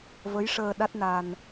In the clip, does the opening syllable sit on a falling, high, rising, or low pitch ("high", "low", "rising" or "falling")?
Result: rising